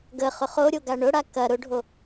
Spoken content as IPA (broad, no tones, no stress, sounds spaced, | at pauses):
ɡ ə χ ʊ χ o ɾʲ o ɡ a ɳ ʊ ɽ a k ɐ ɾ ʊ ɖʱ o